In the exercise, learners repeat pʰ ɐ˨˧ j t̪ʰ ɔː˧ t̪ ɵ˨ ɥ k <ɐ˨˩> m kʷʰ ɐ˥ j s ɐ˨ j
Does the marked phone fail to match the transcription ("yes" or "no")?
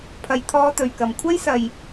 yes